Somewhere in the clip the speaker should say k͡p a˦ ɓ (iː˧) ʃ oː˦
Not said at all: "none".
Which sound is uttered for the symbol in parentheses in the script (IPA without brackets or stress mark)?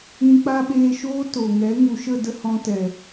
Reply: eː˧